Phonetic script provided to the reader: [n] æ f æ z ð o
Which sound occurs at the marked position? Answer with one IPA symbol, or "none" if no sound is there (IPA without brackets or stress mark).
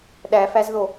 ɗ